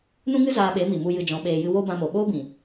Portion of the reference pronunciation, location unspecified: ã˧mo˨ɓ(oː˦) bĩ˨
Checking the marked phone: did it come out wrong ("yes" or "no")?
no